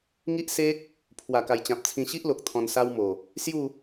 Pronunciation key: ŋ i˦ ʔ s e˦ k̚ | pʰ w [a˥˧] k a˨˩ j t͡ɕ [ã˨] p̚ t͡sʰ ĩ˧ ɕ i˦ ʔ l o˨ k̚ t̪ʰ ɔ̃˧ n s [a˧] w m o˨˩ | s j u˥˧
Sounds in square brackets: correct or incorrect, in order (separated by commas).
incorrect, correct, incorrect